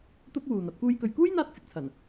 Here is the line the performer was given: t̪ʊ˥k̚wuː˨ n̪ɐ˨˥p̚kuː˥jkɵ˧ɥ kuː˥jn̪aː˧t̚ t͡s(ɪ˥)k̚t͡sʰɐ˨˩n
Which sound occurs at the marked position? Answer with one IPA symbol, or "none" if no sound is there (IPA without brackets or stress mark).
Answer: ɪ˨